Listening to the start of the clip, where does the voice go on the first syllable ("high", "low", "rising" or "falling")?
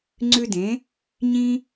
high